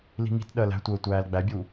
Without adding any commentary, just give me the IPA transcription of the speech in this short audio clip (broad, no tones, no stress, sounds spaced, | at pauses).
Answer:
l i̤ ŋ i̤ t ɗ ɜ l æ̤ tʷ əː tʷ æː l ɡ͡b æ bʲ u